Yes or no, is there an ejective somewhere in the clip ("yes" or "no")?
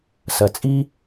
yes